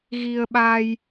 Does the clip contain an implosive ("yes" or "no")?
yes